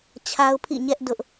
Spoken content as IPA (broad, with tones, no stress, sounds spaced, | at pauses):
t͡ɕʰ a˦ ʊ̯ pʰ ḭ˦˨ ɲ ɛ˦ ʔ d ʊ˦ ʔ